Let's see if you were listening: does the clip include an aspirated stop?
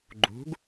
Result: no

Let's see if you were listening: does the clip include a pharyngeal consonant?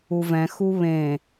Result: no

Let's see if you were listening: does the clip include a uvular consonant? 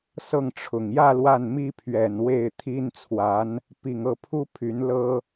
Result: no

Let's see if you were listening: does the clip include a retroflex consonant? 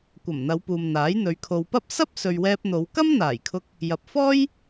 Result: no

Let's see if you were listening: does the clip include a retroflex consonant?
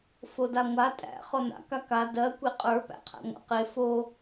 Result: no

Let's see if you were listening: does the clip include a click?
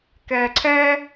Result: yes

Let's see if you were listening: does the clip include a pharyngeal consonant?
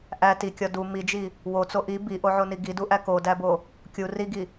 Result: yes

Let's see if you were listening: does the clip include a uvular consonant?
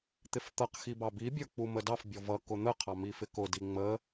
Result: yes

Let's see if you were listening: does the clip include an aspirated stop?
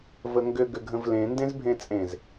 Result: no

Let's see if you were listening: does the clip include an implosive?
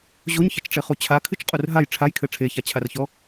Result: no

